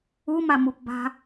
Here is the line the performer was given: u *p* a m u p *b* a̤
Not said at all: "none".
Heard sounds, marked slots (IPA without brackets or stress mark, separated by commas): m, b